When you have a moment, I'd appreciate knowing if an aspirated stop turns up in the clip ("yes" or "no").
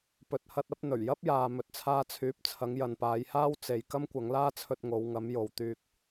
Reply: yes